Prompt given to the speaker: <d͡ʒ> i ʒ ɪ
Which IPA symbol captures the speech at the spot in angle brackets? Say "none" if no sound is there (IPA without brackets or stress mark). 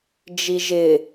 d͡ʒ